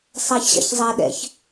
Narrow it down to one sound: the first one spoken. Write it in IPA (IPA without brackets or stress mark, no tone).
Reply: sˤ